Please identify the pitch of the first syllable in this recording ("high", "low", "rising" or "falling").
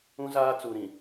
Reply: high